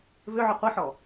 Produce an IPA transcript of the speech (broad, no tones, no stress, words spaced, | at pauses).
vʏʕʏ qʷiħɔ